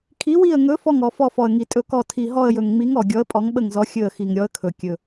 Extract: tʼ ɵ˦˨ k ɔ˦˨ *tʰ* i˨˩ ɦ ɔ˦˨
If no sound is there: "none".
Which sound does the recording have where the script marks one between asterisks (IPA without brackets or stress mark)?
tʰ